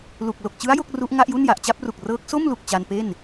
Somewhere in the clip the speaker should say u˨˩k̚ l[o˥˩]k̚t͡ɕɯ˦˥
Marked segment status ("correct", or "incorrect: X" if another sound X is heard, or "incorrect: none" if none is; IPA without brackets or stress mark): incorrect: o˨˩